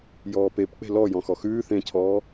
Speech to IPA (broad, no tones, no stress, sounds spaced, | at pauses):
j ɔː p e p k͡p e̤ l ɔ j ɔ̃ x ɔ x ʉː θ ẽ cʰ ɔː